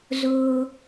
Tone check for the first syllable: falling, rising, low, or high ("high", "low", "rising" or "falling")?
low